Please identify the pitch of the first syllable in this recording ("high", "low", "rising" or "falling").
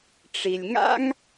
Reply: low